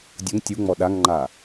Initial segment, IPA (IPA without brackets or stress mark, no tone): dʲ